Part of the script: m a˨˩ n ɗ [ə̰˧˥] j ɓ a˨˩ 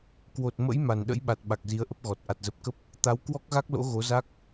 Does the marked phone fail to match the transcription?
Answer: no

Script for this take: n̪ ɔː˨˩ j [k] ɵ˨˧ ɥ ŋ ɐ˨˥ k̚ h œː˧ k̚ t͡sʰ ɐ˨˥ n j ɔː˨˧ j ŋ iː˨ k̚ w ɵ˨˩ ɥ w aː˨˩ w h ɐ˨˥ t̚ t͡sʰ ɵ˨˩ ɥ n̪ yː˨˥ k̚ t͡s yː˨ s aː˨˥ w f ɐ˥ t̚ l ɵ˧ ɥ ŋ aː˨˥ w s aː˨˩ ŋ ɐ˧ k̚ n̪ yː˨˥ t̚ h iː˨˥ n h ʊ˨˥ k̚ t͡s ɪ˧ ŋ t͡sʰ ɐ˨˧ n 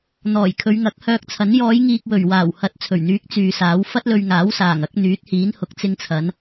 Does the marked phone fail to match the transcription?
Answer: yes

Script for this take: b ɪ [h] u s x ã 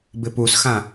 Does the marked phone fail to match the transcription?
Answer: yes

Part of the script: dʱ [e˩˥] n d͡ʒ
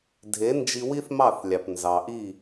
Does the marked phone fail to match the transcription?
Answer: no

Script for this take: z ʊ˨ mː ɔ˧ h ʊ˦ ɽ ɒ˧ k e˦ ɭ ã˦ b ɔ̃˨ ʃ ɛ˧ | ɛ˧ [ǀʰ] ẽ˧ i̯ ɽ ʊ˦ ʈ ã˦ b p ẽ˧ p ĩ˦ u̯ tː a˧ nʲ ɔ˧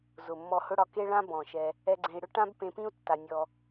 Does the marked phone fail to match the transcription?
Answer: yes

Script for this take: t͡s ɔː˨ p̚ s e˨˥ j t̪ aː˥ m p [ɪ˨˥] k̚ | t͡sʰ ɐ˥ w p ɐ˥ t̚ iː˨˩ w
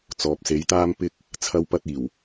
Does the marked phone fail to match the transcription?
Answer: yes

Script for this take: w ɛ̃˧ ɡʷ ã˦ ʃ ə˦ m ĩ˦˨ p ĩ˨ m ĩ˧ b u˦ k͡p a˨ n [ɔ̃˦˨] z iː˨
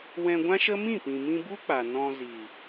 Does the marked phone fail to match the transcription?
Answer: yes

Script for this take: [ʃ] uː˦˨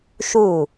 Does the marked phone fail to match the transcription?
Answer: no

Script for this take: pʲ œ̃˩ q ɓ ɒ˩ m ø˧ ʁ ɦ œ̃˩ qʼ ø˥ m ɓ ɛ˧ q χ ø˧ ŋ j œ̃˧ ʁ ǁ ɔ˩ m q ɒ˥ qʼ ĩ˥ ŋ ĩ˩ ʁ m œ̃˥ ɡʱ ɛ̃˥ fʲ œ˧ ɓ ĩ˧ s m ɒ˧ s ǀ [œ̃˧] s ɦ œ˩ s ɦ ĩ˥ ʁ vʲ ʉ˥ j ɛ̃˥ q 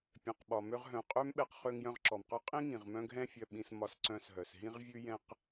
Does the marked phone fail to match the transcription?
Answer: no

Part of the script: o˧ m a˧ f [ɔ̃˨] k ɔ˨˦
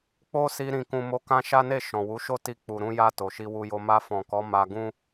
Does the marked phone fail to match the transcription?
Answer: no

